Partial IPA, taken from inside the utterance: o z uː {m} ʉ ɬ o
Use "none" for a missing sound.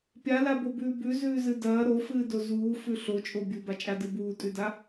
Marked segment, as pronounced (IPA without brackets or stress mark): f